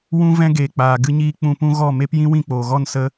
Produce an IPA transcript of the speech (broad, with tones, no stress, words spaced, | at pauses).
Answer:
wũ˦vɛ̃˦ ɡeː˨k͡paː˨ ɡɨ˦ɲiː˦ k͡pũ˧pũ˦ɣɔ˦˨ me˦p jĩ˦wĩ˦˨k͡poː˨ɣɔ˦˨n sə˧